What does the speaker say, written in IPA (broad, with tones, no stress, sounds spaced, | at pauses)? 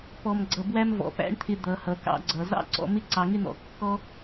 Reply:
p ɔ˩ m ɡ͡ǀ ʌ˩ b w æ˧ m v ɔ̰˩ p æ̰˥ ɳ t̪ʰ ɪ˧ d̪ ʌ˩ h ʌ˩ k ɑ̰˧ ɡ͡ǀ ʌ˩ z ɑ̰˥ ǀ ɔ̰˧ m ɪ˥ ǀ ɑ˧ ŋ ɪ˥ n̪ ɔ̰˧ kː ɔ˥